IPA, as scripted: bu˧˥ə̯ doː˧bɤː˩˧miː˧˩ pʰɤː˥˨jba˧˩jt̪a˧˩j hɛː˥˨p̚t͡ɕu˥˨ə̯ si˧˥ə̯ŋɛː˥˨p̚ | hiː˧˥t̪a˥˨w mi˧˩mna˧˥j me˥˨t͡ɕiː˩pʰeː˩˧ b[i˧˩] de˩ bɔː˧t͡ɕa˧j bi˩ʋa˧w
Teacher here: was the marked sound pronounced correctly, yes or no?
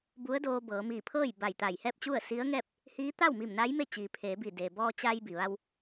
yes